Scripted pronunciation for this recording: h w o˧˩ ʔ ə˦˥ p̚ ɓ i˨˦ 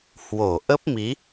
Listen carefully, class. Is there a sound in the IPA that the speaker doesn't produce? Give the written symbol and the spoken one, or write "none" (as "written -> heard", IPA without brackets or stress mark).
ɓ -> m